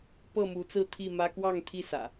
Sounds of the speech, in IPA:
pɤ˥˨mu˨˦t͡sɹ̩˥˨t̪ʰi˥˨ mä˦ kwɑ˥˨ŋt̪ʰi˥˨ sä̰˨˩

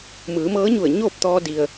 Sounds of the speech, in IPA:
mɯː˩˧mɤː˧˥ɲu˧˩ə̯ ɲoː˥˨p̚t̪ɔː˧di˩ə̯

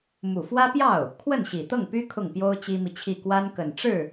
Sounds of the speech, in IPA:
mu˨˩fwä˥pjɑ˥˩ʊ̯ | kʰwə˥˩nɕi˨˩t̪ɤ˥˩ŋpy˥ kʰʊ˥˩ŋpjo˥ʊ̯ t͡ɕi˥mi˨t͡ɕʰi˥˩ kwa˥nkə˨˩n ʈ͡ʂɻ̩˥˩

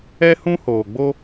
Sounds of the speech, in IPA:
ɛ˦hũ˦hoː˨ɡ͡bo˦

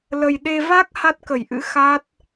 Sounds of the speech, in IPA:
lə˨˩j ɗe˧ va˦˥k̚ ha˦˥t̚kə˧˩jʔɨ̰˧˥ xa˦˥t̚

